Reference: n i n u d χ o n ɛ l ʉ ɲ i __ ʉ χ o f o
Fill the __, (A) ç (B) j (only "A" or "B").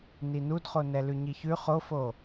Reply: A